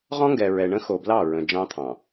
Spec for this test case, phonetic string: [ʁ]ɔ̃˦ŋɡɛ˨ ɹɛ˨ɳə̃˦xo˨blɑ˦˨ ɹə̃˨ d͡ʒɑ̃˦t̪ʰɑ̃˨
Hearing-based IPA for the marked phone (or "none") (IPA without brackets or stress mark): ʁ